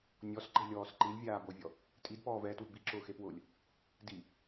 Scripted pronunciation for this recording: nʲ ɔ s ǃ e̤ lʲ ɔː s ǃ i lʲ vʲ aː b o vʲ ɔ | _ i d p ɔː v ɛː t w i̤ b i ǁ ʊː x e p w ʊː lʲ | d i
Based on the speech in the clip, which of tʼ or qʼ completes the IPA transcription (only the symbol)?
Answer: tʼ